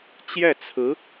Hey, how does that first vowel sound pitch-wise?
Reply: falling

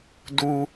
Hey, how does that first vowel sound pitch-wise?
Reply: low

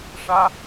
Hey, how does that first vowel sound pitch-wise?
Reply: high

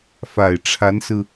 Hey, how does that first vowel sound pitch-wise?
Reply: low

